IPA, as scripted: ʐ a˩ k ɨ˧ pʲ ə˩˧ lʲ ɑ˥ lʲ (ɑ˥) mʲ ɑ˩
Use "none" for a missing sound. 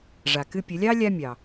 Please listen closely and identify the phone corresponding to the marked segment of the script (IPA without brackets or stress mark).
a˥